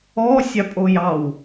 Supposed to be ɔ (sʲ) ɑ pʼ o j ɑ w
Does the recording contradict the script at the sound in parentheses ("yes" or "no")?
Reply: no